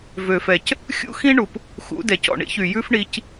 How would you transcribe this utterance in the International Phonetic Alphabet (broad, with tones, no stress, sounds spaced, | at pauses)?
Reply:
v ø˩ f ɛ˩ c | xʲ ṵ˥ x ĩ˥ ɳ u˩ p | x ṵ˩˥ d ɛ˩ c ɔ̰˩ ɳ ḭ˥ ç y˩ j ʉ˥ f ɳ i˧ c